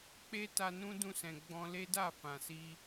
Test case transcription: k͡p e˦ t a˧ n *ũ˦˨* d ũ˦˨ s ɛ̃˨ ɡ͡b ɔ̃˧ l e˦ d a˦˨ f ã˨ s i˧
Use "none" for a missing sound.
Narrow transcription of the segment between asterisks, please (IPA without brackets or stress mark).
ũ˦